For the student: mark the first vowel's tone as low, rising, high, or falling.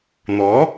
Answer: rising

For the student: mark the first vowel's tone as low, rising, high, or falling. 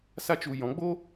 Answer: high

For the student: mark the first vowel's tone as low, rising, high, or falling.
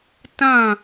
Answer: falling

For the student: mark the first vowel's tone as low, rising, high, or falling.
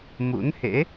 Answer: rising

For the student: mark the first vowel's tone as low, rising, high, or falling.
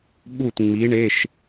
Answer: falling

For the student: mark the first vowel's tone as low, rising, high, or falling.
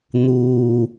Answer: low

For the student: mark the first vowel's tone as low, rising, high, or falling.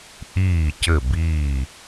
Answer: falling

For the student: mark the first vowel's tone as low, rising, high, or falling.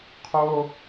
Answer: high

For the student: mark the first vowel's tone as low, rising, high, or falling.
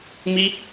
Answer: high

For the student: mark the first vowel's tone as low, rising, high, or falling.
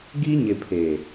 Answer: high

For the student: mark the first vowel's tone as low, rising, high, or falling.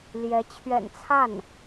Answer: rising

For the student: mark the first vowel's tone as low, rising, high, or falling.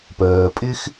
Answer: low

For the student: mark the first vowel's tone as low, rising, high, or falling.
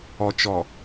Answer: low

